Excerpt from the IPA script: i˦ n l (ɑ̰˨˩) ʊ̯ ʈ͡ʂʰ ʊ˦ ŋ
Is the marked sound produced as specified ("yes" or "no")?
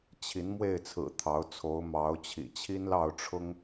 no